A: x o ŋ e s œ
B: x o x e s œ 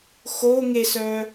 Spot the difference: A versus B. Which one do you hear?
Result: A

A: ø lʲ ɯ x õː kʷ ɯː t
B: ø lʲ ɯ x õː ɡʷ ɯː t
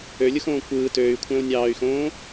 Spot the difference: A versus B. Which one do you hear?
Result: A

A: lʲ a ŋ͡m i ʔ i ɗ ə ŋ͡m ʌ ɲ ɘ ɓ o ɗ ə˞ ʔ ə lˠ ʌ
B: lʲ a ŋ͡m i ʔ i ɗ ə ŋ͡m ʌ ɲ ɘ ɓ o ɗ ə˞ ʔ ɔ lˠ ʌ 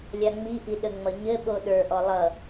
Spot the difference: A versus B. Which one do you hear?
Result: B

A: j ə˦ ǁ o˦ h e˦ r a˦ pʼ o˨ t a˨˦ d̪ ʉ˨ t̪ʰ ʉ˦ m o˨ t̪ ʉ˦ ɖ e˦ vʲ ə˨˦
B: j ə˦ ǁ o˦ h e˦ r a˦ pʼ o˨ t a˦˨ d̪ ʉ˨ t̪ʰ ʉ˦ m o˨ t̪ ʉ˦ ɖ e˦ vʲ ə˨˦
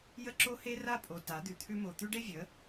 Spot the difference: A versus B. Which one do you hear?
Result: A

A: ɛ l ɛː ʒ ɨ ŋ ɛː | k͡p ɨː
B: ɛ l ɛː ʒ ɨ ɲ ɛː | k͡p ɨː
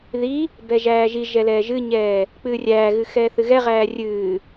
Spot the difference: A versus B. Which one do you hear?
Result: B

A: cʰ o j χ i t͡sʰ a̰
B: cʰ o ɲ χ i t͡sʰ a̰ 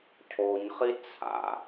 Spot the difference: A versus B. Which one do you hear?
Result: B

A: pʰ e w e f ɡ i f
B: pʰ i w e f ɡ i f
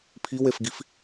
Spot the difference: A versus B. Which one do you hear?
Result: B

